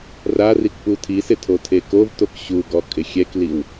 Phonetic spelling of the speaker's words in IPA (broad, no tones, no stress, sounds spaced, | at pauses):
r a r i k p u tʰ i s ɪ tʰ o tʰ e k o v t o k ɕ u ɡ ɔ kʼ ɪ xʲ ɛ k l i w